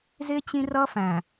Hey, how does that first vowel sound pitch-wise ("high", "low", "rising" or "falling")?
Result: high